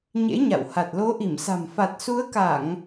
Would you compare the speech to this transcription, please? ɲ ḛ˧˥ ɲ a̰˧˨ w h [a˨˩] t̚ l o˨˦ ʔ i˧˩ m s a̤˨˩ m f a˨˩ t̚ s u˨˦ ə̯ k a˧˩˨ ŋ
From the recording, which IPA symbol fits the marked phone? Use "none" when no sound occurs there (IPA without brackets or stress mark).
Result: a˨˩